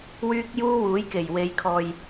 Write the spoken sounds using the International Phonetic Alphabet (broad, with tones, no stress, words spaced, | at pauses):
wyː˥k̚juː˥wuː˨˥j ke˨˩jwe˨˧jkʰɔː˨j